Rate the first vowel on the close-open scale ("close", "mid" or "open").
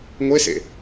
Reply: mid